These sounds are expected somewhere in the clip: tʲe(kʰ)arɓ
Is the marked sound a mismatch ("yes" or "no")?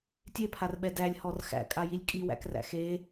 yes